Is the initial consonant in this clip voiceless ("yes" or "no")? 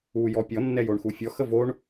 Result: no